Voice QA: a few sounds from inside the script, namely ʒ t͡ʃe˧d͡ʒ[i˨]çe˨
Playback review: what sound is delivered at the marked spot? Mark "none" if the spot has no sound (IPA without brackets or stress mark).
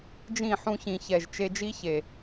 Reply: i˦